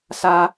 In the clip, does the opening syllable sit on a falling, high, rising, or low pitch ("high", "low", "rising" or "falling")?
high